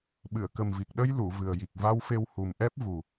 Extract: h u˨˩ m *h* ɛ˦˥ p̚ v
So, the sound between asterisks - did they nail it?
no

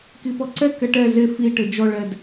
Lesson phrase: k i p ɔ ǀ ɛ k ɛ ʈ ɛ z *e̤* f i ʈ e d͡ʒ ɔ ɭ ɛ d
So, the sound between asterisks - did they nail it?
no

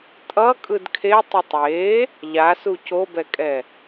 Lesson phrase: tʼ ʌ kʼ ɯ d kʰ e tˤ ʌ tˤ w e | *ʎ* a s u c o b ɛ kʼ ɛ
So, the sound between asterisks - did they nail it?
yes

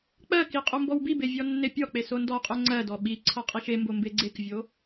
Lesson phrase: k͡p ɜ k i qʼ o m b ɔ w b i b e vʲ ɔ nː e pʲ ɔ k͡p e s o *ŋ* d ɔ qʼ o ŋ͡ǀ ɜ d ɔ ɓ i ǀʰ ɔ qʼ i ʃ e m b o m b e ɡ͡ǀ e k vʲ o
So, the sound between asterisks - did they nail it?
no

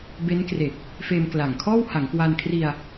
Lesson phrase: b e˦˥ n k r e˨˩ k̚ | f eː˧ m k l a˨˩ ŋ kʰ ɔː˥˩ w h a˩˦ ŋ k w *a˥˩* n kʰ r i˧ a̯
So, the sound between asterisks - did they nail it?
no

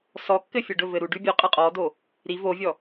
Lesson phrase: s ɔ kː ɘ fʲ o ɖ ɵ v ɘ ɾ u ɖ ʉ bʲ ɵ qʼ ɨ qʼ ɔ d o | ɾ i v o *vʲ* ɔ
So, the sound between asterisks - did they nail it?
yes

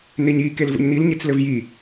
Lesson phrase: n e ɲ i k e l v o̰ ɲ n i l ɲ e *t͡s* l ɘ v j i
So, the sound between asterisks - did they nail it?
yes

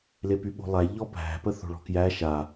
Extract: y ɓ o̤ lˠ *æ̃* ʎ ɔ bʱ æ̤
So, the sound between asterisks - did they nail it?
no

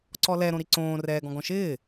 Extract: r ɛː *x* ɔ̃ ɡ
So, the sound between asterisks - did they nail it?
no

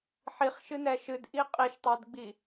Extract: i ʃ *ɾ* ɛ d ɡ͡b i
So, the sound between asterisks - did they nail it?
no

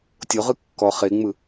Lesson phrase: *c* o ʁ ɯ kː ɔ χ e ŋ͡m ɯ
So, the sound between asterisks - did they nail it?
no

